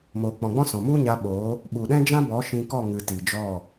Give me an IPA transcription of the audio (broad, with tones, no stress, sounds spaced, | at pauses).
m oː˨ k͡p ɔ̃˨ ɡ͡b ɔ̃˦ s ɔ̃˨ m u˦ ɲ a˧ ɓ oː˨˦ | ɓ u˨ ɗ ɛ̃˦ d͡ʒ ã˦ b ɔ˨˦ ʃ ĩ˧ k ɔ˦˨ ŋ ɨ˨ t i˨ d͡ʒ ɔ˦˨